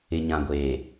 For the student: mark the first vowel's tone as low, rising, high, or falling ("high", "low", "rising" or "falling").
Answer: low